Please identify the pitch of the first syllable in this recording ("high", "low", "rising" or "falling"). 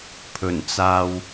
low